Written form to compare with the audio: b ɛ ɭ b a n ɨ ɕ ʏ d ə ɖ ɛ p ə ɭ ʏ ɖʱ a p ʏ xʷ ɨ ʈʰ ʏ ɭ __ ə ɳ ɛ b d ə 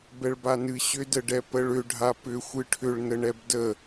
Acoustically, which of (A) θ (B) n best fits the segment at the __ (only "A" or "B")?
B